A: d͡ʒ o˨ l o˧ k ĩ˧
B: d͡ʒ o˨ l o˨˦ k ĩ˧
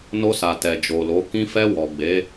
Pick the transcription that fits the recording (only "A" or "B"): B